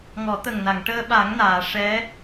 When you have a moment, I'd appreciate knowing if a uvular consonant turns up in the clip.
no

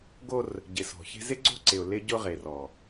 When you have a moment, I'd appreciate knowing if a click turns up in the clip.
yes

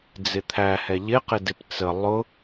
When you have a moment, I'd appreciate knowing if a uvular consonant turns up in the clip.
yes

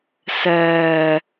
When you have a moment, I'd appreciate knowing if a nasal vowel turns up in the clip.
no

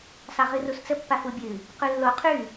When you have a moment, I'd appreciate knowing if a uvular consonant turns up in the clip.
yes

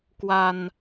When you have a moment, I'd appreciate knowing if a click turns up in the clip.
no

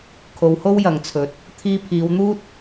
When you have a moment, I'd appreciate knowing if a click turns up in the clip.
no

